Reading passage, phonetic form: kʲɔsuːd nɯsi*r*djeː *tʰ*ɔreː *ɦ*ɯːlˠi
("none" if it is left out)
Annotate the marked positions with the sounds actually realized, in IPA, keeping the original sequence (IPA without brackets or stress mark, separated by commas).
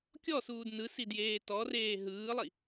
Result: none, t, ɦ